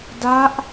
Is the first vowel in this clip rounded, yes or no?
no